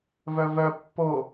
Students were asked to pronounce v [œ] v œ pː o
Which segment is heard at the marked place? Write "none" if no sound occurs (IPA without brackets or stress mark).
œ